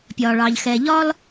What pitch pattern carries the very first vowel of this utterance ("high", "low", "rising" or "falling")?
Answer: low